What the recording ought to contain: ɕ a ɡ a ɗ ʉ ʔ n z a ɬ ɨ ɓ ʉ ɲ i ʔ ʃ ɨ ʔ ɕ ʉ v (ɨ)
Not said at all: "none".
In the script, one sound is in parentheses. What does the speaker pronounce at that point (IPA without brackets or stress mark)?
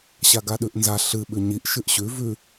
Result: ʉ